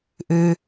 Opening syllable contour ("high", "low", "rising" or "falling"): low